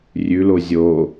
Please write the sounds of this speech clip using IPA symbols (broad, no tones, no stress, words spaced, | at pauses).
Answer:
rʲʉlo zʲo